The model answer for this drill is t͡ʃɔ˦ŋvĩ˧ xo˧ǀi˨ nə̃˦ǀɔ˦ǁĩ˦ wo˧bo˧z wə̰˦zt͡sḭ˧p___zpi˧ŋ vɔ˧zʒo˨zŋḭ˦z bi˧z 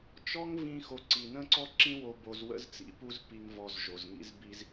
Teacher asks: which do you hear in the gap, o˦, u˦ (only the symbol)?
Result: u˦